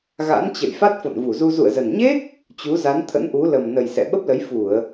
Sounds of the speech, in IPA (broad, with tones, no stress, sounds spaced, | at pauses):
ɣ a̰˧˥ n t͡ɕ ə̰˧˨ j f a˦˥ t̚ f o̰˧˨ n v u˧˩ z u˧ z ṵ˧˨ ə̯ z ə˨˩ n ɲ e˦˥ k̚ | t͡ɕ u˨˦ z a˨˦ n t̪ʰ ə̰˧˥ n ʔ u˨˦ l ə˨˩ m n ə˨˩ j s ɛ̰˧˨ ɓ ə˦˥ p̚ l ə˨˦ j f u˧˩˨ ə̯